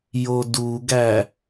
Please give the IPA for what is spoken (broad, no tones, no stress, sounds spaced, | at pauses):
j o d u ɡ æ